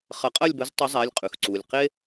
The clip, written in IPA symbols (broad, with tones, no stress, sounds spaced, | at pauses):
χ ɐ˨˩˦ qʼ ɐ˥˨ lʲ b ə˨˥ z tˤ ɐ˨˥ zˤ a˩˧˩ lʲ qʼ ʉ˩ x ǀ u˩ lʲ q e˦